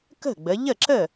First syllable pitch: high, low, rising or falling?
falling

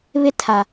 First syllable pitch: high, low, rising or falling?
high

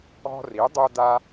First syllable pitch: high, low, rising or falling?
high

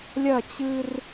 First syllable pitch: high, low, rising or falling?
falling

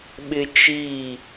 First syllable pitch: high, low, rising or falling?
high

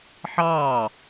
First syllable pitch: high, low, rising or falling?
falling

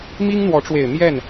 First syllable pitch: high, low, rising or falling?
high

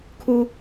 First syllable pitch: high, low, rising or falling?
high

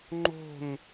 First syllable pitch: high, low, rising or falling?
falling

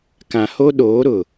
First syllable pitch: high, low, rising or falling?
low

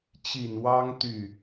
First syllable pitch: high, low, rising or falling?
low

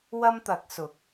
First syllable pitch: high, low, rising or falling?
high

